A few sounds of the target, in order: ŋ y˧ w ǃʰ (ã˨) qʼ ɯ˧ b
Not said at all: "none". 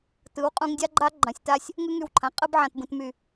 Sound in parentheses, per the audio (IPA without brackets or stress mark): ã˨